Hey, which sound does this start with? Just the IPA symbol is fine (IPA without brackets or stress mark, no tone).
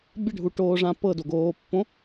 bʲ